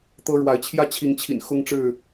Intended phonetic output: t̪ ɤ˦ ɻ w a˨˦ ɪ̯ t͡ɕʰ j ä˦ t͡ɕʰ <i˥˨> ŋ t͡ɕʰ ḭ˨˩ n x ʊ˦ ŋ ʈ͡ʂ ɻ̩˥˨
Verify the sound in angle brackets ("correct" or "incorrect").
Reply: incorrect